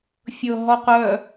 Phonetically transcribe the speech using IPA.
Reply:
fʲɤːɦɔqœ

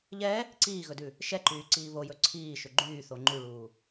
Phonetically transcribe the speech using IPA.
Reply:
ʎɛ | ǀiːɣɵdʉ | ʃɛǃyːǀiː βojɵ ǀʰiːʃø ɡ͡ǃyːθo ŋ͡ǃʉɭuː

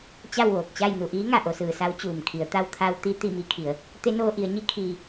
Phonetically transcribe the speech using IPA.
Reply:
t͡ɕa˥˨wʋoː˧˩k̚t͡ɕa˥˨j nu˧˩ʔiː˧˥ŋa˩ ʔo˩˧sɯː˩sa˧˥w t͡ɕuː˩mkʰi˩˧ə̯ t̪a˧wt̪ʰa˧w t̪i˧ t̪i˥˨mi˧˥kʰi˩˧ə̯ | t̪e˧˥noː˧ ʔi˩˧ə̯ɲi˧˥ kʰiː˩

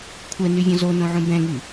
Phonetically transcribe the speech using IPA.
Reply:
kʷʰɛnyvʲɔ̃ zonõʕũ bɛ̃ŋy

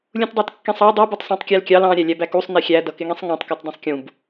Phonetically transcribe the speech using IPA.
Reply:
lʲũtdˤɑtkːĩsˤɑ dˤu butˤsˤɑ̃tˤkʲælkʲɑl ɑ̃ ɾʲælʲæbækusˤ nixʲæ dʌkɪŋĩsˤŋæ̃tˤ kætˤdĩsˤkʲũb

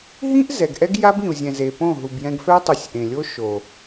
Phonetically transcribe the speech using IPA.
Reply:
ɦĩ˦ʔ zɛ˨ɡʔɛ˦ɡ ja˦bĩ˨u̯zʲɛ̃˨ze˨ põ˦˨ ɦu˨bjɛ̃˧ɡfɛ˦tˤu˨sʲ ʔẽ˨lʲo˦ ʃo˨

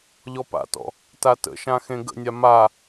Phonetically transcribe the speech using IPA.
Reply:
ʎɔpa̰tɔ̰ | tatə̰ʃã xẽɡə̰nʲa ma

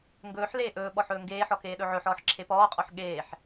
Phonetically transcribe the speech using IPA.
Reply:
ŋɡɵːħ leːʔɵːɓɔħ ɵːŋɡeːħɔ keːɗɵʕɵħɔːħ ǁʰepɔːqʼɔħ ɠeːħ

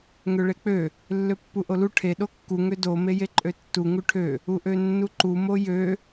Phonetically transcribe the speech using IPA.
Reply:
ŋøɭek͡pø | lːøpːuʔolu ʈʰe ɗokːu ŋødo mejeǃʼøtːu ŋuʈʰø | uʔønːuǃu mojø

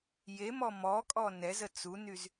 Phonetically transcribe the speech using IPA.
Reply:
jemɔ mɔkʼɔ nɛzə t͡sunyz

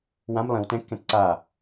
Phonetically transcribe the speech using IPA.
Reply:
wãm lˠĩw tɛ̃kːɛ̃t ǀa

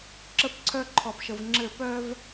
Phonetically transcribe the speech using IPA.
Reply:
ǁə˦p ǀʰœ˦ǃʰɔ˨pʃə˨vŋ͡ǁɘ˦˨ pœ˦v

